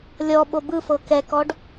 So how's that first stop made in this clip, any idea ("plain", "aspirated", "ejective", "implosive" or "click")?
implosive